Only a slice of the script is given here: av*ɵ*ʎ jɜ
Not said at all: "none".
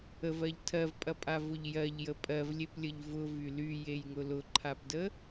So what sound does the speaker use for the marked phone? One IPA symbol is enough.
ʊ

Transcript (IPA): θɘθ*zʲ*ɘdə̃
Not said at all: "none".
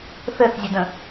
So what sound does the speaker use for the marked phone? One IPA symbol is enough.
zʲ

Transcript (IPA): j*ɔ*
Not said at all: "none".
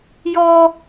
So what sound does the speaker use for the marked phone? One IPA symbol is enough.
ɔ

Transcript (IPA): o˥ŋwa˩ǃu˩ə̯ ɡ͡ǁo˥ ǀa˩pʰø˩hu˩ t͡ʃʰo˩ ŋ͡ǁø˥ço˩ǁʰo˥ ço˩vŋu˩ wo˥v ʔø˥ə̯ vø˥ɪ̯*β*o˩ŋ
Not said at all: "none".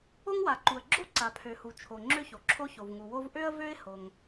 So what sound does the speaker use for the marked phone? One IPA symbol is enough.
h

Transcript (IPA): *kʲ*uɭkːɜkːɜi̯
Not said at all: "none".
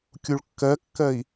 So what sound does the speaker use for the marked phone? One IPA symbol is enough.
kʲ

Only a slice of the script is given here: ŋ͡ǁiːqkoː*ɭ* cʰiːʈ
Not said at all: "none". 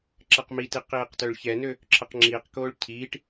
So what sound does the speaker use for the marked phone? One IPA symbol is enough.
ɭ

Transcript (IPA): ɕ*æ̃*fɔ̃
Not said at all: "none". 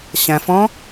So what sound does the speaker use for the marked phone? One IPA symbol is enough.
æ̃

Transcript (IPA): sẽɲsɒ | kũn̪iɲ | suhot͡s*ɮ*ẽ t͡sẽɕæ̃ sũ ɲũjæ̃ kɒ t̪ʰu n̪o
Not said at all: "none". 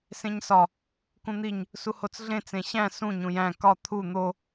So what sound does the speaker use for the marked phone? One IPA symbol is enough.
ɮ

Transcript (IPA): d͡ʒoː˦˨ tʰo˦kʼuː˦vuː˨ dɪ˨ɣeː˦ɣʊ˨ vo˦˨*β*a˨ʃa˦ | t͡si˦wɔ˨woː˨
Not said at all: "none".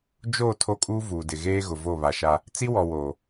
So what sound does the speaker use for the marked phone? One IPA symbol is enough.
β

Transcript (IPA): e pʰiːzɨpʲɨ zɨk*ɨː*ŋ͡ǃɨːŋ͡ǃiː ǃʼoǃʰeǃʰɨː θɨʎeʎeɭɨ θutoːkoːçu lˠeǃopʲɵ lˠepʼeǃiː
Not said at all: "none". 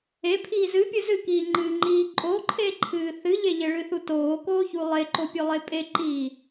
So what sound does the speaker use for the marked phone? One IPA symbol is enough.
iː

